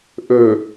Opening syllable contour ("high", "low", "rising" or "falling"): low